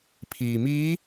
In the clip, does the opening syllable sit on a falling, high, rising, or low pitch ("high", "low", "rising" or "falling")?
low